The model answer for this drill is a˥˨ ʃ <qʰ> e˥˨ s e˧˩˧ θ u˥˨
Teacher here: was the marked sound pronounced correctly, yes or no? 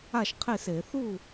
yes